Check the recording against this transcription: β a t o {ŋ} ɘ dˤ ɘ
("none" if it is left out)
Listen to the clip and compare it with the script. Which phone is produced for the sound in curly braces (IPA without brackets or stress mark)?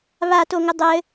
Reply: ŋ